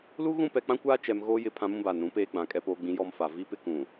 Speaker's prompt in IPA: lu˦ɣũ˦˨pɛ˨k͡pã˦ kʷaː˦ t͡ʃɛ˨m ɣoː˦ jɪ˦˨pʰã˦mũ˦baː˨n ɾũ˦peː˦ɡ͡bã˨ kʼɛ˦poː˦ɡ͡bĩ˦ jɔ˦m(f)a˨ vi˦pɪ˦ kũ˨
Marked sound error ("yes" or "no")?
no